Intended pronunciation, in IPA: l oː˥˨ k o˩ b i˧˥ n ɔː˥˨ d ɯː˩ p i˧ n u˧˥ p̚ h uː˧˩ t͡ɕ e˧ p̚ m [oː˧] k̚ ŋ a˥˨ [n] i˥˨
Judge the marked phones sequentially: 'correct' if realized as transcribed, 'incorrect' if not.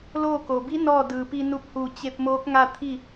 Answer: incorrect: oː˧˥, incorrect: t̪ʰ

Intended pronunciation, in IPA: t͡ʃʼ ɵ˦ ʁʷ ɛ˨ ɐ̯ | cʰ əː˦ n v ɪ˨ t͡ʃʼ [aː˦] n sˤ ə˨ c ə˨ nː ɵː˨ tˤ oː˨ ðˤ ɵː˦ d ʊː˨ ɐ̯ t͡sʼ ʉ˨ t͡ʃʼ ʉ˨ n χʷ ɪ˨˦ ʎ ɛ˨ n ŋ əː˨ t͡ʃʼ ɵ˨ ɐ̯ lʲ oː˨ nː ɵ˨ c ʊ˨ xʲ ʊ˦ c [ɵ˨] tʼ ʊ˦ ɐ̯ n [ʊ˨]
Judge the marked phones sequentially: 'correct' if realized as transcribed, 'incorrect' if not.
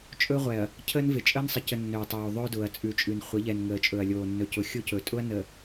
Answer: incorrect: əː˦, correct, incorrect: ə˨

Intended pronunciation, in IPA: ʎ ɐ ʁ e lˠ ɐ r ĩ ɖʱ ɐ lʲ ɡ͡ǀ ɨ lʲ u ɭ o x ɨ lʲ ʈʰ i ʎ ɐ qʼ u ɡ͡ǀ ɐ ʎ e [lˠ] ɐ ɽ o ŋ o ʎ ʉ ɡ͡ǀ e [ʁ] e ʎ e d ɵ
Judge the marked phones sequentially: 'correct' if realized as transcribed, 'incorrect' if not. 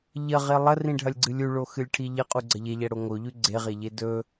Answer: incorrect: ʎ, correct

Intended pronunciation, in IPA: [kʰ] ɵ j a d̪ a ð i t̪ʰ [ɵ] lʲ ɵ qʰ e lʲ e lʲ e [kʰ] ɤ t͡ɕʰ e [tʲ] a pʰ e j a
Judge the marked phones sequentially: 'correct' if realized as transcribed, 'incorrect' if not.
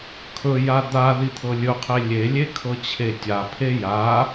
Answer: correct, incorrect: ɤ, correct, correct

